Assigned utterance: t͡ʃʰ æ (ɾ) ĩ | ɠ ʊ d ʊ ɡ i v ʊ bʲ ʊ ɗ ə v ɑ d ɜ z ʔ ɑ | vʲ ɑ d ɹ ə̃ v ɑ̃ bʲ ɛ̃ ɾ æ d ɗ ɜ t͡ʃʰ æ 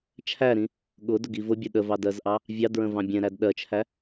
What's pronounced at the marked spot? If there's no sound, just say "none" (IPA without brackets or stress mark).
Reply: ɾ